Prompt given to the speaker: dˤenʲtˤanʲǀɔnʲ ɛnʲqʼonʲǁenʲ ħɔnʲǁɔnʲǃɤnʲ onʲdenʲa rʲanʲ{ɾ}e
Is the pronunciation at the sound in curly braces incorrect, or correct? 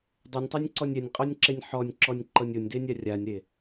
correct